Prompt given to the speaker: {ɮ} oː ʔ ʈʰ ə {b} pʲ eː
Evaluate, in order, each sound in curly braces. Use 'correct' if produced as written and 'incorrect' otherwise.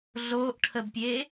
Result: correct, correct

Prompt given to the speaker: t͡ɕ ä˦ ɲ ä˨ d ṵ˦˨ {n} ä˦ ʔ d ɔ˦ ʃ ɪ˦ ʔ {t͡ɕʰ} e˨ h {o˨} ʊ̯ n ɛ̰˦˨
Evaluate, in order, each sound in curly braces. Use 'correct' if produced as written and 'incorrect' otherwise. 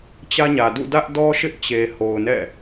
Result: incorrect: d, incorrect: t͡ɕ, correct

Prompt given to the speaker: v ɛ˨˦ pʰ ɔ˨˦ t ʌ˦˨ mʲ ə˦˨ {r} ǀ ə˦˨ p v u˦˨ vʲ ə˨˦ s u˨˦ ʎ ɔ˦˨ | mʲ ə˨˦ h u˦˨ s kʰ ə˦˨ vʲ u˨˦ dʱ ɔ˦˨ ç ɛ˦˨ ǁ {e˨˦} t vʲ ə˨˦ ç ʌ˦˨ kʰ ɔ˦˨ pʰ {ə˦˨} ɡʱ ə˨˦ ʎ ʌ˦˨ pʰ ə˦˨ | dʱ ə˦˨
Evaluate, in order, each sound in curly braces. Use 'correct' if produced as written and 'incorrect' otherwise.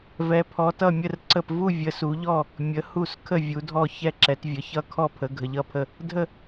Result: correct, incorrect: ɛ˨˦, incorrect: ə˨˦

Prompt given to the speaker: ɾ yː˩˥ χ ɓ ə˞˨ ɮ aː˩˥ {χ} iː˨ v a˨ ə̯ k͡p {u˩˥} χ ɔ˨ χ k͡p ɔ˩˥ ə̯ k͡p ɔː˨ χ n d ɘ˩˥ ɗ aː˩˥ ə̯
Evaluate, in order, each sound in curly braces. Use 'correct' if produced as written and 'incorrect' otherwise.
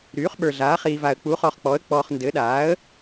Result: correct, correct

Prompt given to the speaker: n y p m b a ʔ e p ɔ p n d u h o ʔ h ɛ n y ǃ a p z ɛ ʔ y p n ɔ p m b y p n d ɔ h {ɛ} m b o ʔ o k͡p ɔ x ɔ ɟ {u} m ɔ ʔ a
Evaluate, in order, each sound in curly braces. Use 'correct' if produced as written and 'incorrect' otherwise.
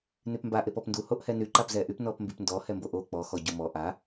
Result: correct, correct

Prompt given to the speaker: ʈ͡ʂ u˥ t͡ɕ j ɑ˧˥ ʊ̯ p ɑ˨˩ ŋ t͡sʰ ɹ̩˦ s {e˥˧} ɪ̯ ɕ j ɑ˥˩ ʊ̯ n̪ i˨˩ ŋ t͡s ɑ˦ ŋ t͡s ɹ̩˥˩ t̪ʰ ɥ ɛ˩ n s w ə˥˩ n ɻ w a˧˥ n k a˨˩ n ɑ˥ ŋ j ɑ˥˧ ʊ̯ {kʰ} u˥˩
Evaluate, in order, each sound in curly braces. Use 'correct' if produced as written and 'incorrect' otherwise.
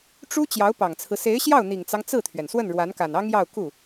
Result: incorrect: e˧˥, incorrect: k

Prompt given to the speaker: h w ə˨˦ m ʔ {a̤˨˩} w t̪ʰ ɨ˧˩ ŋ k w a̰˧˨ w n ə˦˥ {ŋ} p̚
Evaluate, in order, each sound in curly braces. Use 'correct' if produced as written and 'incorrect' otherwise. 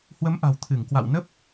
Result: correct, incorrect: none

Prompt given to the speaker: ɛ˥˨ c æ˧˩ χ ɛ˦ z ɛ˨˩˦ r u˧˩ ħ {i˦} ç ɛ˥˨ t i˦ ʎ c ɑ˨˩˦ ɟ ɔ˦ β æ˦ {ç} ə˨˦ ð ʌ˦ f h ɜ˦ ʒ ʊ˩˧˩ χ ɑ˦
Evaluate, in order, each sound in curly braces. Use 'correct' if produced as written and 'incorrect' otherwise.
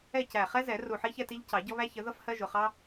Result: correct, correct

